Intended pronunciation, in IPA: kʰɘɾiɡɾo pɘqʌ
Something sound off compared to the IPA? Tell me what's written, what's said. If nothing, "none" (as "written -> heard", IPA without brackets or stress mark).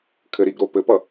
q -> p